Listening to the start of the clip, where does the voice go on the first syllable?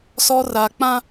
high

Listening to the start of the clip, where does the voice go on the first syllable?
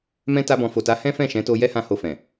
high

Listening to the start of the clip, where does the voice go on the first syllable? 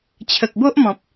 low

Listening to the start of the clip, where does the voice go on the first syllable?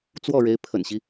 falling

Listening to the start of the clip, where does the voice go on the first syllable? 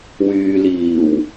low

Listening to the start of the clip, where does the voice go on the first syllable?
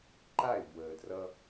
falling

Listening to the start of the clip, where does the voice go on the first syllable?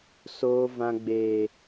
high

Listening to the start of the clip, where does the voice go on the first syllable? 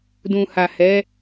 low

